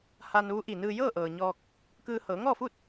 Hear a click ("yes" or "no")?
no